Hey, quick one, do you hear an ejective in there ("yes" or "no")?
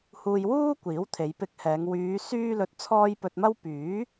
no